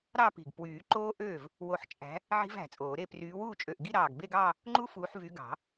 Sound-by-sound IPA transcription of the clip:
ɾ ɑ˥˧ p i̤˧˩ ɡ p w yː˨˩˦ ǃ oː˦˥ ʔ øː˥˩ v | w o˧˩ ħ t͡ʃʼ æ̤˨˦ | ʕ i̤˦˥ v æ̤˨˩˦ t͡sʼ oː˨˩˦ ɾ e˥˧ p r yː˨˦ w uː˥˩ t͡ʃʼ ø˧˩ ʔ ɡ i˥˧ ɾ ɑː˧˩ ɡ b e˥˧ ɡ ɑː˥˧ | ŋ͡ǃ u˦˥ f uː˨˦ ħ v y˨˦ ɡ ɑ̤˨˩˦

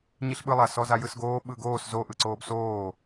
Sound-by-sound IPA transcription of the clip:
ɲ i ɬ ɓ ɯ lˠ a s ɔ z a j ɯ s ɡ oː ɓ ɯ ɡ oː s z o ʔ ɯ ǀ oː b s oː

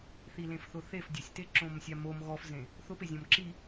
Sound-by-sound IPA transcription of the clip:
θ i l ẽ f θ ʊ θ e f dʲ ʊ sʲ t e ǁ õ m sʲ a m o m ɣ ɔ f z ẽ | θ ʊ p e zʲ ɔ̃ m ǁ i

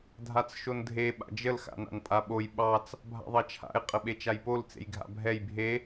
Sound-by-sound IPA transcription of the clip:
dʱ a t͡s ʃ o n dʱ e ɓ a̰ d͡ʒ ə l x a̰ n a̰ n pʼ a ɓ o j ɓ ɑ t͡s | bʱ a̰ ðˤ ɑ t͡ʃʰ a̰ ɪ̯ qʼ ə ɓ e t͡ʃ a j p o l t͡s ḛ j ɡʱ a̰ bʱ ɛ j bʱ e

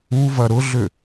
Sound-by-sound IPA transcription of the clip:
u v ɐ ɾ ʊ ɮ ʏ

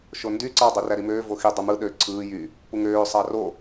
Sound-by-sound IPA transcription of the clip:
ʃ o n d y ǀ ɑ dˤ u r æ ɾ i m øː v o x i dˤ ɯ m ɯ ɗ ø ǀʰ ɯː j y | p u ŋ øː sˤ ɑ r o

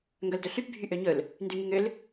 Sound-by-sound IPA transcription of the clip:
ŋ ɡ œ l d ɵ ɬ y p bʱ y ʔ ø ɲ ɵ l | n d y ŋ y ŋ ø l

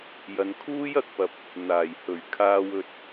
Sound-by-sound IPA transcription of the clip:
j ɐ˨˧ n kʰ uː˥ j ɐ˧ k̚ p ɐ˨ p̚ | n̪ aː˨˩ j h ɵ˨˩ ɥ kʰ aː˨ w ɵ˨ t̚

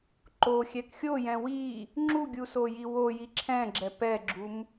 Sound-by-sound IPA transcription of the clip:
ǃ o xʲ ɛ k xʲ o j ɛ̃ w i | ŋ͡ǁ u ɡʲ u s o j i w o j i ǁʰ ɛ̃ ɡ͡ǁ ɛ p ɛ ɡ͡ǁ u m

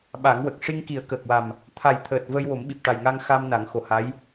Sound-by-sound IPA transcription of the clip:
ɓ a˨˩˦ ŋ w ə˨˩ k̚ ʂ i˧ ŋ k i˨˩˦ ə̯ k əː˨˩ k̚ w a˨˩ m | t̪ʰ a˨˩ j t̪ʰ əː˨˩ t̚ v əː˧ j w o˨˩˦ m ɓ i˨˩ p̚ ʈ a˨˩ j ŋ a˧ ŋ x a˧ m n a˨˩˦ ŋ x o˨˩ h a˧˥ j

